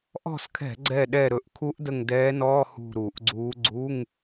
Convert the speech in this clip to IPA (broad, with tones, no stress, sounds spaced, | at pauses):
ʔ ɔ̤˦˨ s kʰ ɛ̤˧˩˧ ɡ͡ǀ ɛ˦˨ ɗ ɛ˦˨ ɾ ɵ˧˩˧ ʔ kʰ u˧˥ ʔ d ə˦˨ ŋ d ɛː˧˥ n ɔː˧˥˧ h ṳ˦˨ ɾ u˧˩˧ ʔ ɡ͡ǀ uː˧˥ ɡ͡ǀ u˧˥˧ ŋ